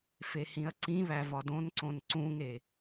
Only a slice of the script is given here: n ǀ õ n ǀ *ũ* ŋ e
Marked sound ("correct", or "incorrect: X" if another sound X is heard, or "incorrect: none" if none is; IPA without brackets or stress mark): correct